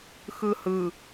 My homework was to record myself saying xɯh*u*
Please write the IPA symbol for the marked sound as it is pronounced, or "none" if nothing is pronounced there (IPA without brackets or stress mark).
ɯ